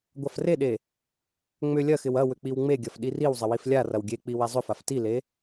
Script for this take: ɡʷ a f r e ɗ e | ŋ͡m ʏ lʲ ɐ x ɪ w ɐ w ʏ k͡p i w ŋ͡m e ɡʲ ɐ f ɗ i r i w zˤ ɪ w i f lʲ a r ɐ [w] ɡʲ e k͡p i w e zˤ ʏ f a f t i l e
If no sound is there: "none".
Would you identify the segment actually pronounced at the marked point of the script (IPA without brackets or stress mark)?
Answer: w